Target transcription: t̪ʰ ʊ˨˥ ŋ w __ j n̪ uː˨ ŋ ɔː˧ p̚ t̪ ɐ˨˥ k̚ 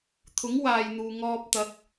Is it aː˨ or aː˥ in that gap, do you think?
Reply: aː˨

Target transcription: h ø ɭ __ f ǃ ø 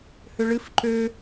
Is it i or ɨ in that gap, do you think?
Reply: ɨ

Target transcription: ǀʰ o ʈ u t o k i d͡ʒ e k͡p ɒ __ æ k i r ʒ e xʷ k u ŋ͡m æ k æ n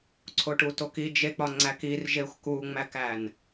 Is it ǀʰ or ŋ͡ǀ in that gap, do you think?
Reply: ŋ͡ǀ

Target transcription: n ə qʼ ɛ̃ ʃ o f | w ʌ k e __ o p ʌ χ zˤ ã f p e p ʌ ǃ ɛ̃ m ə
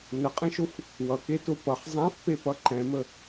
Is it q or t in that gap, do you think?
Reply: t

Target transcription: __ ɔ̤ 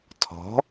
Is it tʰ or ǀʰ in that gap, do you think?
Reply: tʰ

